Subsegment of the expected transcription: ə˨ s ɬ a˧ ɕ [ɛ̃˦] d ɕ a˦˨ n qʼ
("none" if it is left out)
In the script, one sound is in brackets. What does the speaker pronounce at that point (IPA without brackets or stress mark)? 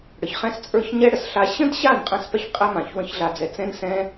ə̃˦